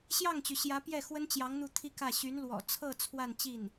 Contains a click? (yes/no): no